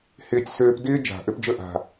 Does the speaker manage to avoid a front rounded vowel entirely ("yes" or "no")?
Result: no